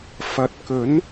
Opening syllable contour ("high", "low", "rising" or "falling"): rising